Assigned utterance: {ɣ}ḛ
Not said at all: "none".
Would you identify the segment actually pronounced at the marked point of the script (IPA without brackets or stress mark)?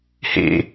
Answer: h